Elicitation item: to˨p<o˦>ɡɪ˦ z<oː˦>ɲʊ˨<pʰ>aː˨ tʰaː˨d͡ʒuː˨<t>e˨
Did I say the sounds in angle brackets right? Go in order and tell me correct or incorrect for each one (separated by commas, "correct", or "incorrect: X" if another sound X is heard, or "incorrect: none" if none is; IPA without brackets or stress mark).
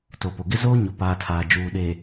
incorrect: o˨, correct, incorrect: p, incorrect: ɗ